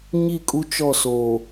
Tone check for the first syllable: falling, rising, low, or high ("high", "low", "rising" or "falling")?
falling